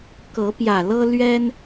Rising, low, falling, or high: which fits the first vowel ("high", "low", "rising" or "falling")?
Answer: rising